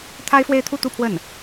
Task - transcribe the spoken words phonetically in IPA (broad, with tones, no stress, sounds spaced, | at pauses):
t̪ʰ a˥ ɪ̯ f w e˥˧ ɪ̯ t̪ʰ u˥˧ t̪ u˥˧ pʰ w ə˥˩ n